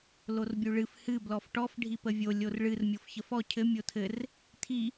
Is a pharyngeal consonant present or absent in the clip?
absent